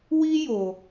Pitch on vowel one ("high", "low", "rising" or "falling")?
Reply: high